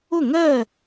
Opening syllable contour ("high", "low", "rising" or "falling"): falling